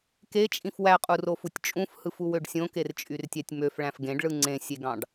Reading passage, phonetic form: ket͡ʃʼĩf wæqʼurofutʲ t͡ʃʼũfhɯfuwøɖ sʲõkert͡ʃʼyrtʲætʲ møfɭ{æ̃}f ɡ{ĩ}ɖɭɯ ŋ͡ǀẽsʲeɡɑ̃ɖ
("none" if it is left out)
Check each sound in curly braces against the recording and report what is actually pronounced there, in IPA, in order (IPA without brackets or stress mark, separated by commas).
æ̃, ẽ